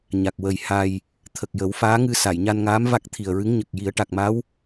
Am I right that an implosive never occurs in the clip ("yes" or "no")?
yes